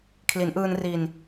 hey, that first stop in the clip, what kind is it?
aspirated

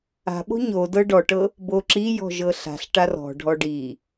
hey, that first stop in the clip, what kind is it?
implosive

